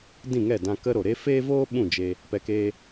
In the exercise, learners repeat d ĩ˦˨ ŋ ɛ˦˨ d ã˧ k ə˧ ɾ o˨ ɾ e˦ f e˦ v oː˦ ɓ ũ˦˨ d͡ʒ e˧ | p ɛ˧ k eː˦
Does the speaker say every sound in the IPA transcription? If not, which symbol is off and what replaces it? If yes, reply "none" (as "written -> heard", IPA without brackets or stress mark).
none